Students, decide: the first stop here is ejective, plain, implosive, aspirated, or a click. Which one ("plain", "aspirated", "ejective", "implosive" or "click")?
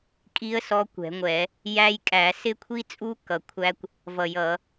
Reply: ejective